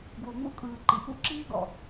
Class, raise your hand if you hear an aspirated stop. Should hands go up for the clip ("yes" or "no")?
no